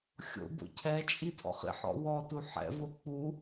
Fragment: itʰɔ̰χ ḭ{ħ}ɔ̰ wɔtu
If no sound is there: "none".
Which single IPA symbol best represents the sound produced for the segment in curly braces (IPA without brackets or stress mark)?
ħ